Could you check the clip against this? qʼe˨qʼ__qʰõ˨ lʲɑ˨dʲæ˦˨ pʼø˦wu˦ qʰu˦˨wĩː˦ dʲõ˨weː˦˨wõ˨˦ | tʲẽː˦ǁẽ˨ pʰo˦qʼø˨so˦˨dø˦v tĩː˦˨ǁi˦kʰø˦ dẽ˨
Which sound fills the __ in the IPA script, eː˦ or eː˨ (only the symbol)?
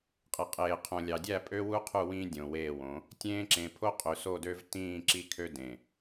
eː˨